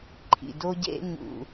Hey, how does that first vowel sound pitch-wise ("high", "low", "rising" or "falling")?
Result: low